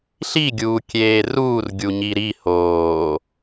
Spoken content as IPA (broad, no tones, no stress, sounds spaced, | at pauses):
ɬ i ɡʲ uː kʲ eː r uː r ɡʲ u ɲ i ɾ i h oː